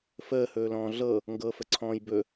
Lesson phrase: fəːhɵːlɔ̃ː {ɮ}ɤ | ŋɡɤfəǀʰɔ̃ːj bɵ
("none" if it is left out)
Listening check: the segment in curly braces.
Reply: ɮ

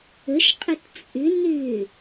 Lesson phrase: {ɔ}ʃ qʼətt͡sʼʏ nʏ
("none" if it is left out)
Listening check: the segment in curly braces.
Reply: ə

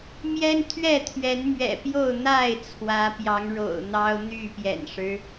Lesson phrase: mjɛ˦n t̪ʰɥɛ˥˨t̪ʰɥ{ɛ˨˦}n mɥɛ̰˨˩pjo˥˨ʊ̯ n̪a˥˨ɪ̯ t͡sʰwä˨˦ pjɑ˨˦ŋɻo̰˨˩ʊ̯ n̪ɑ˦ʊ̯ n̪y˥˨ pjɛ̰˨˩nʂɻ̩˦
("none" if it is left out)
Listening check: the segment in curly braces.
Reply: ɛ˨˦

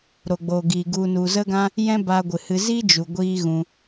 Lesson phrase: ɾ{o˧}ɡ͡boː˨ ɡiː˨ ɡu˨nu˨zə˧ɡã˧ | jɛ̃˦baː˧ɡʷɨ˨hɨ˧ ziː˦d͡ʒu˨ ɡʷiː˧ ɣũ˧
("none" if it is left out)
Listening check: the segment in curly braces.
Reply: o˨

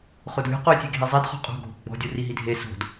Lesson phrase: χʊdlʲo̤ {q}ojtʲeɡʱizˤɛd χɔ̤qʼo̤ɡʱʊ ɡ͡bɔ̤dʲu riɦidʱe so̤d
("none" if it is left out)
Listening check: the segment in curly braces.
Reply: q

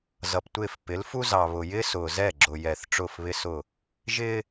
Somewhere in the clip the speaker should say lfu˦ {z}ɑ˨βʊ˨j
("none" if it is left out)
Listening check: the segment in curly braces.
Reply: z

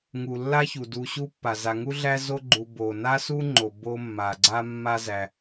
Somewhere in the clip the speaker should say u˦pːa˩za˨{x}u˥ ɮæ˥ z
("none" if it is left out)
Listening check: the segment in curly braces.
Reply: ŋ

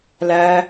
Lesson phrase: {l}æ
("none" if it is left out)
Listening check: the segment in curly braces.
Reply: l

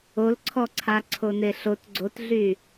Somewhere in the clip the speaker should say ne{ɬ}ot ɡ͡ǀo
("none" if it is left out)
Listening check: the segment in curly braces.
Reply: ɬ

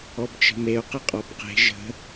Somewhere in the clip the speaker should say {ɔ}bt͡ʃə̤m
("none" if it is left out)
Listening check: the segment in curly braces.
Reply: ɔ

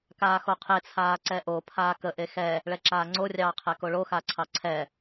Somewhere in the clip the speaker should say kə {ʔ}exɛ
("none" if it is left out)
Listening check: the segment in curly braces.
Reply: ʔ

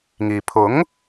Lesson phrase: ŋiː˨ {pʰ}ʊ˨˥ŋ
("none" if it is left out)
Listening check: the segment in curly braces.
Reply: pʰ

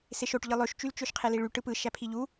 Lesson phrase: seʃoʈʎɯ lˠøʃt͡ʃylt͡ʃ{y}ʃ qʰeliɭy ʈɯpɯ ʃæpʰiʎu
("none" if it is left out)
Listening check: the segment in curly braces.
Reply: ø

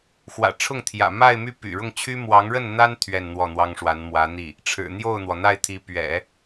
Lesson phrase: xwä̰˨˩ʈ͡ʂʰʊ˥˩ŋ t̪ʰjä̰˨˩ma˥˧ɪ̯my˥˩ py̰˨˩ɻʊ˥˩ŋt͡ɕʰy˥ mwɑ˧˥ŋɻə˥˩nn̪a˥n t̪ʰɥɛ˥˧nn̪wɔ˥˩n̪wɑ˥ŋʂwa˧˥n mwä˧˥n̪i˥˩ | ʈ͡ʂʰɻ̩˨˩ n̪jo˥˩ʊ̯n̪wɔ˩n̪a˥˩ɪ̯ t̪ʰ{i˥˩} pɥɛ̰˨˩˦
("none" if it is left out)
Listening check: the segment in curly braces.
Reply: i˧˥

